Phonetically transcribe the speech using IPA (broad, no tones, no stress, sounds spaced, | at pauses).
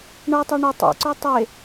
ɳ ɤ tˤ ɤ ɳ ɪ tˤ ḛ ǀ o tˤ e